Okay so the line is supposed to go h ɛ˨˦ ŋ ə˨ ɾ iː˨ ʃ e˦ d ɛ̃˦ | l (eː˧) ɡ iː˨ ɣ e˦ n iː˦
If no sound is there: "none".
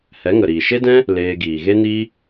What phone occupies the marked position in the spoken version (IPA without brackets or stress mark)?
eː˧